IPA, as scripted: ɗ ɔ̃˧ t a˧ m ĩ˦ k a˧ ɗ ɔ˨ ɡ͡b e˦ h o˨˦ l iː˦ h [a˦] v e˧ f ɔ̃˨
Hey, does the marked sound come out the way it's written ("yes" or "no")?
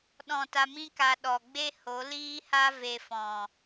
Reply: yes